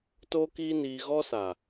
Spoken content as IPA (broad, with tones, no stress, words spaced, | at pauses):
toː˦kiː˦niː˧ ɣɔ˦sa˨